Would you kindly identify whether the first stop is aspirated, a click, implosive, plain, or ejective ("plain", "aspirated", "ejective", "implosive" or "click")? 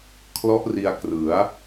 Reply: aspirated